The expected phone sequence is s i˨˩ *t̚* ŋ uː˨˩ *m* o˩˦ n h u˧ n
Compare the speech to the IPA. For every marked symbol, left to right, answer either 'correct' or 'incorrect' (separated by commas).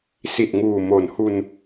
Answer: correct, correct